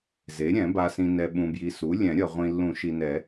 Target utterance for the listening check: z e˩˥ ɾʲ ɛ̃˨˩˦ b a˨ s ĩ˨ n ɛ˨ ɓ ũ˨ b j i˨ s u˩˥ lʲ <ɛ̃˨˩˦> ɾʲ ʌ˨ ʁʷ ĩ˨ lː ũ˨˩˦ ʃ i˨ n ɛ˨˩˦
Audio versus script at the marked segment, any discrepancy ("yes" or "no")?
no